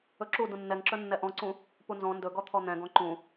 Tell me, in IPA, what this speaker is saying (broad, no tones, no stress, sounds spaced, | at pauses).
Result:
ɵ ǁ u d ũ nː ɛ ŋ ǁ ɵ nː ɛ ʔ ɔ̃ ǀ ũ | p u n z ɔ̃ n d ɵ ɡ ɔ t̪ʰ ɔ n̪ ɛ̃ ɡ ɔ̃ ǃ ũ